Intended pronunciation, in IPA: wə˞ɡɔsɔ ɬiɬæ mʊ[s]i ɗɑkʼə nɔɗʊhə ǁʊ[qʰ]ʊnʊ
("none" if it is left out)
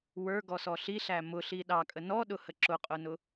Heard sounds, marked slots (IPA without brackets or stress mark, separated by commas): ɬ, qʼ